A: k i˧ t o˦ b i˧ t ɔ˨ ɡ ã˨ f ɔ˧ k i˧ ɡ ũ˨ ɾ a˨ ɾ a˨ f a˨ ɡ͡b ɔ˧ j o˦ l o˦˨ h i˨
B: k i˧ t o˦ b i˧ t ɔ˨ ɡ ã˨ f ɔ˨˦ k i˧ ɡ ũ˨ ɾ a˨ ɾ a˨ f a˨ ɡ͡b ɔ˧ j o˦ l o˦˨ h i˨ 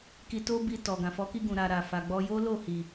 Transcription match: B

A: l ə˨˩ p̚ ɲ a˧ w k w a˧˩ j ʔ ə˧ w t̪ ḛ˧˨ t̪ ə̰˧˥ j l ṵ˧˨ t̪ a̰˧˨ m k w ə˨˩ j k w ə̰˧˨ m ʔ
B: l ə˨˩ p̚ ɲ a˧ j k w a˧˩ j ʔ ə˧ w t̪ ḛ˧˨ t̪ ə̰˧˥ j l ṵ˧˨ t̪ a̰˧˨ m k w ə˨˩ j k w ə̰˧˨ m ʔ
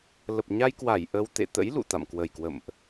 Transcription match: B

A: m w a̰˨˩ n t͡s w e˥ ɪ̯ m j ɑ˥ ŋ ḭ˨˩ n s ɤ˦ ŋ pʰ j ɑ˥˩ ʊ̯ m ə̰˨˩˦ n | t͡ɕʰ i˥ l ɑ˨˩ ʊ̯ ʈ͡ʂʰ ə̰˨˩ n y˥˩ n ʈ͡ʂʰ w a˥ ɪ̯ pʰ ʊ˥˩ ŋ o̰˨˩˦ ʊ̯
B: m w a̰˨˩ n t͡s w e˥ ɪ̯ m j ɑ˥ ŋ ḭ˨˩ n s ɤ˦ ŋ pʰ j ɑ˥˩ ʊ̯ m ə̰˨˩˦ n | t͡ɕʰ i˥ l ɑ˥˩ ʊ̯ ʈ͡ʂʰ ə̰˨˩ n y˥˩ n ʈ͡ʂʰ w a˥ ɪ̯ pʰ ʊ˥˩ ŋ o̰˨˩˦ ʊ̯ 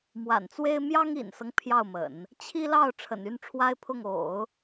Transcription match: B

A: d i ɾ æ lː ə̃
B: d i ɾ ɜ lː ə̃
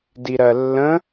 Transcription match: B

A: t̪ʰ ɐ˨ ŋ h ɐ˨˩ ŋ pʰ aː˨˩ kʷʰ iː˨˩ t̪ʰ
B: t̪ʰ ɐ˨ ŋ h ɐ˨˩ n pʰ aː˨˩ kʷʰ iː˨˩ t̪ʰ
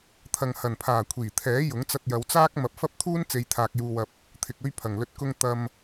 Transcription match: B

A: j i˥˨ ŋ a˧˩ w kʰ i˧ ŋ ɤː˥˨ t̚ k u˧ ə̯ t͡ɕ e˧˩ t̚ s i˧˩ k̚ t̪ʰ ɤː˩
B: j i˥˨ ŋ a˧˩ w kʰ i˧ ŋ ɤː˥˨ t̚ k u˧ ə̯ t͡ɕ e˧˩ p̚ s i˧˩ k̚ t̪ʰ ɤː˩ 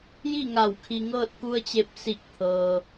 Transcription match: B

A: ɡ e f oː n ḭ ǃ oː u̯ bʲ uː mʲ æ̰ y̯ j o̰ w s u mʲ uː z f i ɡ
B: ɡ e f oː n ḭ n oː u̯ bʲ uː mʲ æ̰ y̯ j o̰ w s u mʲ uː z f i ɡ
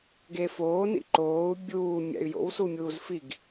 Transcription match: A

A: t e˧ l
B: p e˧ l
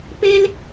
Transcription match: B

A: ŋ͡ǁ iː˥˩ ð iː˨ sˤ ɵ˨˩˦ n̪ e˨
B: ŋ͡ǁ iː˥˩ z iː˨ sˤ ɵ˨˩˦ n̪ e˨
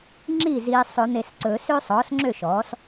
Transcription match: B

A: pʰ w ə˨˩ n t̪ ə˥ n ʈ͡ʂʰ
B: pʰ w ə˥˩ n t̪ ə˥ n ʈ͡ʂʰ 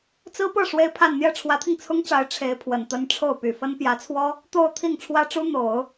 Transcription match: A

